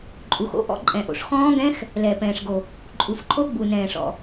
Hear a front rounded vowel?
no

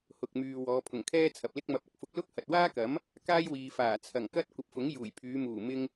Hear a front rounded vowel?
yes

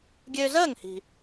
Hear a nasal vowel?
no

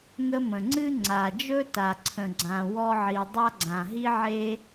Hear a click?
yes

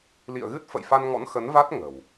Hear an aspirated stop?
no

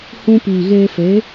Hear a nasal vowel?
yes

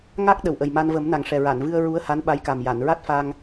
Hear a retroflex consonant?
yes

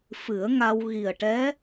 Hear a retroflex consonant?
yes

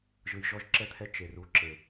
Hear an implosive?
no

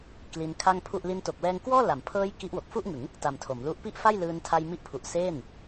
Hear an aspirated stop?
yes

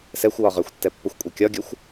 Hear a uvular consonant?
yes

